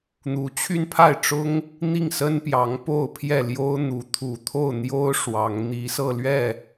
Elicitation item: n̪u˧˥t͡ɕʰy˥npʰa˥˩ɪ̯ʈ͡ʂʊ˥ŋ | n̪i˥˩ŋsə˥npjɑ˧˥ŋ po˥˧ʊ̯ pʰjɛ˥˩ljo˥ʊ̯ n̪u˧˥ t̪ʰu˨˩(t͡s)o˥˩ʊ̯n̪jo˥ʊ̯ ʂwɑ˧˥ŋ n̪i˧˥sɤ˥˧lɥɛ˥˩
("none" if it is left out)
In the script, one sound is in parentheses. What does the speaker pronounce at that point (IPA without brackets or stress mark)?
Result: t̪ʰ